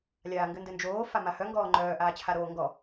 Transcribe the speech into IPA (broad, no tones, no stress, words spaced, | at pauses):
lʲaːŋɡɘndɘnd͡ʒoː famahœ ŋɡɔːŋ͡ǃœː ʔaːt͡ɕʰaɾoːŋɡɔ